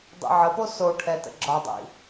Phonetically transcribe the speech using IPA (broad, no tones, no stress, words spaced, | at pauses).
dˤḭʕəpo soʈʰɛ tə̰ɡ͡ǁɒdˤḭ